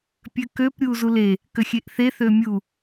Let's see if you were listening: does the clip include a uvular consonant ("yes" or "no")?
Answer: no